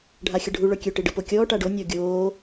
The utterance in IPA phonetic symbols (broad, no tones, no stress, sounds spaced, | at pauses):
ɖʱ a xʲ ə ɖʱ u ɭ œ kʲ ø ʈ i ɖ ə p o kʲ ɔː ʈ a ɖ o nʲ ɔ ɡʲ oː